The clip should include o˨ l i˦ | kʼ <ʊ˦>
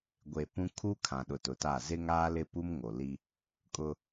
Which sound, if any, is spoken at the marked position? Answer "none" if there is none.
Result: ʊ˦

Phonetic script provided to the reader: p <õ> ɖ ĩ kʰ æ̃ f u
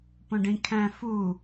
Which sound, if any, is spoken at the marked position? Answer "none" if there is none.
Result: õ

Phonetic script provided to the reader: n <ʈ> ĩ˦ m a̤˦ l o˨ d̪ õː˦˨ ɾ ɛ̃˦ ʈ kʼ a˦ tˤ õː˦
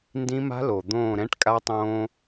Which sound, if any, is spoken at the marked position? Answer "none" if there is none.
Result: d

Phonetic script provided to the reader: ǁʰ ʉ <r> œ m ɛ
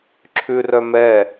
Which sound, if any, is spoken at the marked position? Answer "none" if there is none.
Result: r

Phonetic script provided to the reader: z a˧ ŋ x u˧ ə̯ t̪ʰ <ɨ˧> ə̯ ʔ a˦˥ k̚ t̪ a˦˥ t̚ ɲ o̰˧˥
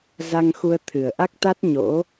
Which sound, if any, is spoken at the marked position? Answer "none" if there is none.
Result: ɨ˨˩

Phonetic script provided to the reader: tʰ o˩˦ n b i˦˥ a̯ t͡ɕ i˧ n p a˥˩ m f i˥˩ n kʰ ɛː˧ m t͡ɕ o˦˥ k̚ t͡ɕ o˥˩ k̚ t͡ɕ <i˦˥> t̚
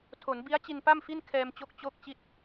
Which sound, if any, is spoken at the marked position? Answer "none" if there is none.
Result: i˥˩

